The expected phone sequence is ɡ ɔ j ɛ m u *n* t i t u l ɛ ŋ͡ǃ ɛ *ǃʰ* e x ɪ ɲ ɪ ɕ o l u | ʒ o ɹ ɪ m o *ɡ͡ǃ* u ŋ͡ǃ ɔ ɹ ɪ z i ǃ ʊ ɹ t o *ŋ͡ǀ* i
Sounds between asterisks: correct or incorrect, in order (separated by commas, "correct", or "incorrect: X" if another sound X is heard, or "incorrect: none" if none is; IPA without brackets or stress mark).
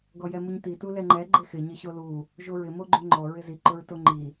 incorrect: ɲ, incorrect: ɡ͡ǃ, correct, incorrect: ŋ͡ǃ